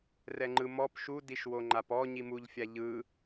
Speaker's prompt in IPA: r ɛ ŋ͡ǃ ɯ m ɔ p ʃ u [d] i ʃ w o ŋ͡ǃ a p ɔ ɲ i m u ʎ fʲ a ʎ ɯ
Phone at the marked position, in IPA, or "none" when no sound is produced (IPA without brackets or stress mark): d